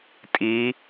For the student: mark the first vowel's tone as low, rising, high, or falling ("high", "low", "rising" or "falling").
rising